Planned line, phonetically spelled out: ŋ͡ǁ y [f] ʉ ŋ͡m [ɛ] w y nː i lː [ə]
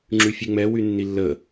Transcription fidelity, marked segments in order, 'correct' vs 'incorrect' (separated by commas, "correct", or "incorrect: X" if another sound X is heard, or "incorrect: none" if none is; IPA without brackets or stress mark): incorrect: fʲ, correct, correct